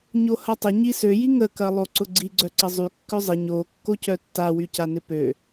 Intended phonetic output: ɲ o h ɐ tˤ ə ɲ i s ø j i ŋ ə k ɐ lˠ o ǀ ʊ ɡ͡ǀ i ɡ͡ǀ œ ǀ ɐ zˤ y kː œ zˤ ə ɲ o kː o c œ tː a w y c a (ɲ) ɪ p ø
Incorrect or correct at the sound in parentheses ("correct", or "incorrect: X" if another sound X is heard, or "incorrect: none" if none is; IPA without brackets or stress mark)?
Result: incorrect: n